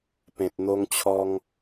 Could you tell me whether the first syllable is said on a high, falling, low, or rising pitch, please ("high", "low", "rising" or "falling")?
low